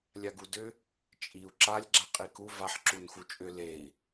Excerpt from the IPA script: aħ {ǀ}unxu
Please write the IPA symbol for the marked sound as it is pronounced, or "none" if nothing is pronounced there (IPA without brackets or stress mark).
ǁ